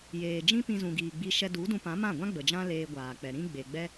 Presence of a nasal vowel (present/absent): present